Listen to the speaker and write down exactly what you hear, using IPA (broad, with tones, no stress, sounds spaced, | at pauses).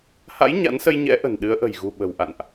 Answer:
h a̰˧˥ j ɲ a̰˧˥ n s ə˧ j ɲ ɛ̰˧˥ ʔ ə̤˨˩ n ɗ ɨ˨˦ ə̯ ʔ ə̤˨˩ j ɣ ṳ˨˩ ɓ ə̤˨˩ w ʔ a̰˧˨ n ʔ